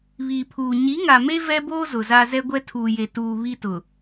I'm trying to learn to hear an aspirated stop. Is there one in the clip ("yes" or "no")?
yes